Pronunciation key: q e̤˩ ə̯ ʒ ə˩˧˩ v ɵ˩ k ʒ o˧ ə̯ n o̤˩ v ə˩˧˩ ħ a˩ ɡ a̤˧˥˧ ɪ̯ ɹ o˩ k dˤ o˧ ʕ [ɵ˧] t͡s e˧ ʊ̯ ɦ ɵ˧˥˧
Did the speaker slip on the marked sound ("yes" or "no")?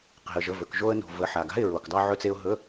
no